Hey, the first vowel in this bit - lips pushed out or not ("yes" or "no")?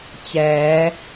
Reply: no